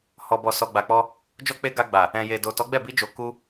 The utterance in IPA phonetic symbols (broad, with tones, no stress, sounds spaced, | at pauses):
h ɔ˨ b ɔ˨ s ɔ˨ ɡ͡b a˨ k͡p ɔ˧ | d͡ʒ ɔ˦ k͡p e˦ ɡ a˧ ɡ͡b a˨ | ɛ̃˨ j e˨ d o˨ t ɔ˨˦ ɡ͡b ɛ˦˨ b i˧ d͡ʒ o˨ k u˧